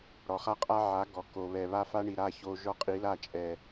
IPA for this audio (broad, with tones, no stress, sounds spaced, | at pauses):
ɽ ɔ˨ χ a˦ qʼ a˦ ʕ a˨˦ ɡ ɔ˨ k o˨ β ɛ˨ β a˦ f a˦ ɳ i˨ ɾ a˦˨ ç o˦ ʒ ɔ˦ qʼ i˨˦ l a˦˨ t͡ʃʼ ɛ˨